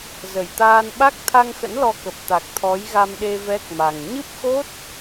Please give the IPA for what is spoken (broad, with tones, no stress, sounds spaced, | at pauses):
z ə˧˩ j t̪ aː˧ n ɓ a˦˥ k̚ t̪ʰ a˧ ŋ x ə̰˧˥ n l ɔ˧ k ə˨˩ p̚ t̪ a˨˩ k̚ t̪ʰ ɔ˨˦ j ɣ a˧ m ɗ e˧ v ɛ˦˥ k̚ m a˨˩ ŋ ɲ ɨ˦˥ p̚ x o˦˥ t̚